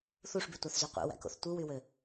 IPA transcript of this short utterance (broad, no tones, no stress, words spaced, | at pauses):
θuʂbytʷɑθzy qʷḛwæ̰ko̰θ tʷɯwywø